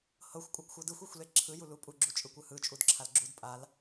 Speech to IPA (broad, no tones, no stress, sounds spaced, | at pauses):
h ɤ xʷ kʷʼ ɤ ɡ xʷ ɤ d ɯ xʷ e xʷ l e ǁʰ ɯ j u l u pʼ u ɡ͡ǁ u t͡ʃʼ ɯ kʷ ɯ h ɯ t͡ʃʼ u d ǁʰ a l ɡ͡ǁ u d pʼ a l